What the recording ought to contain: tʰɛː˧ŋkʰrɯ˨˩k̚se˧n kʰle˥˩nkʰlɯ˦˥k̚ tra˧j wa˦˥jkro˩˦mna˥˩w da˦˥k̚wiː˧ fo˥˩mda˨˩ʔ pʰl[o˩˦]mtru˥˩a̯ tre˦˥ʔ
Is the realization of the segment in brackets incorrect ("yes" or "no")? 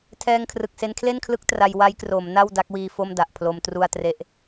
yes